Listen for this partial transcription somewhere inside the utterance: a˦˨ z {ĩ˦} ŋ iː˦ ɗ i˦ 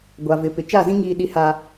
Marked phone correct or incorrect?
correct